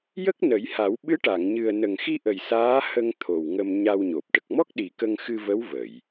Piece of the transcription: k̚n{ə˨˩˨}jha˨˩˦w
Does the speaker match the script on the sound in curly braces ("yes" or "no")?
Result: no